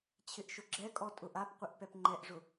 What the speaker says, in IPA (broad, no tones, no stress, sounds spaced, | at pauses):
t͡ɕʰ ɪ ʔ ʃ ʊ ɡ͡ǁ ɛ kʼ ɔ tʼ ʊ ʔ a p qʷ ɪ ʔ p ɛ p ŋ͡ǃ ɛ ʔ ʐ ʊ